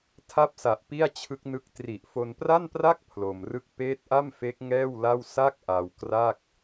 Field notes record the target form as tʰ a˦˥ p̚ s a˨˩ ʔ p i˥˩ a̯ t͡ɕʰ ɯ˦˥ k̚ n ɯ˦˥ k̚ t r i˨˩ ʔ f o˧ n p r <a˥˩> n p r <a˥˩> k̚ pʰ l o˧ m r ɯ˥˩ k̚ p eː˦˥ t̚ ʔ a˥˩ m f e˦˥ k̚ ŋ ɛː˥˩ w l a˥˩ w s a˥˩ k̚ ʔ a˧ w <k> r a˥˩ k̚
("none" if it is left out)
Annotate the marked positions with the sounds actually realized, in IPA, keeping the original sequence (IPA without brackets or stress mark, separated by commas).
a˥˩, a˥˩, k